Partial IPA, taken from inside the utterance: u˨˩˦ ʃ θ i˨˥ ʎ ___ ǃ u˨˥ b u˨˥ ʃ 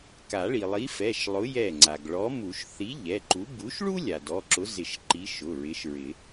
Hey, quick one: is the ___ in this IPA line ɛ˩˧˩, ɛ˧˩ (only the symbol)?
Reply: ɛ˩˧˩